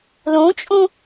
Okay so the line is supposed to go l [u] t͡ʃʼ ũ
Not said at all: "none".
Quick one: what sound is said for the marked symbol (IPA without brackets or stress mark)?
ũ